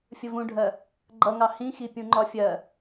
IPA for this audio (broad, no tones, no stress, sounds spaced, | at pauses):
fʲ ə v ũ ɖʱ ɜ | ɡ͡ǃ ʌ ŋ ɑ h ĩ x i pʲ ũ ŋ͡ǃ ɒ fʲ ɜ